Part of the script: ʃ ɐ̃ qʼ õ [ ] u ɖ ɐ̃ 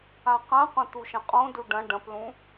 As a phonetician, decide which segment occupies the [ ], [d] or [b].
d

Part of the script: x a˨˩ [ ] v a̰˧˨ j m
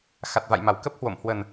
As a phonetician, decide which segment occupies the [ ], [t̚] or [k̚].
t̚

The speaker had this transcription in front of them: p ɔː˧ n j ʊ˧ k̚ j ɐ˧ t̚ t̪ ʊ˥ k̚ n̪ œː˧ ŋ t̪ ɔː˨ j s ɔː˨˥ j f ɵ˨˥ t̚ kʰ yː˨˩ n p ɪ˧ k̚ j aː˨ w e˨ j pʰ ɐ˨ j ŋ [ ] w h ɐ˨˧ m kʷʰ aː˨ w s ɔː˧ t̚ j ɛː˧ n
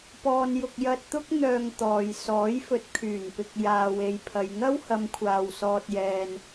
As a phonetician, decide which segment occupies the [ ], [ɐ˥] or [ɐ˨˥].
ɐ˥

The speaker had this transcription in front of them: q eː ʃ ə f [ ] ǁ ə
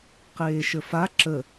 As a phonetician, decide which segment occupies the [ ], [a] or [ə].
a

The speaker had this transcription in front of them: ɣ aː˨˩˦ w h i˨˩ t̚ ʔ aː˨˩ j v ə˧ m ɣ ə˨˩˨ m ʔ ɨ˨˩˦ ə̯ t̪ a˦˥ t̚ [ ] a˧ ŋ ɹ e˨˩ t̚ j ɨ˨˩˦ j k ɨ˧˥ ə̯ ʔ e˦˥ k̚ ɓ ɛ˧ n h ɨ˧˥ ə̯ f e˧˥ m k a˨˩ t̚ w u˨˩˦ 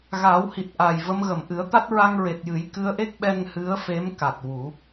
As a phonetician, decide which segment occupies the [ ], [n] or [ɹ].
ɹ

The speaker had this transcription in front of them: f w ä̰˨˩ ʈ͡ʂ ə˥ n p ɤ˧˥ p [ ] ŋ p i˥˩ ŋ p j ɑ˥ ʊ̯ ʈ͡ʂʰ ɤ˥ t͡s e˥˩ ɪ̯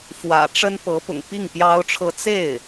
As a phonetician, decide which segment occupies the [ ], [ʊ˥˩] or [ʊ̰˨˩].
ʊ̰˨˩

